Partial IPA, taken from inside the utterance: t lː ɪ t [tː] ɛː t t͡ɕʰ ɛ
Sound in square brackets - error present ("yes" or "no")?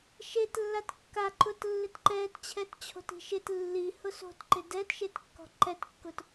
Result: yes